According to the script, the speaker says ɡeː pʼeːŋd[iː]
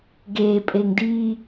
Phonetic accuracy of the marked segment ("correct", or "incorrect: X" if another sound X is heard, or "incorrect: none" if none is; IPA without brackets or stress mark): correct